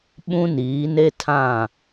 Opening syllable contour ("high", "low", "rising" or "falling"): high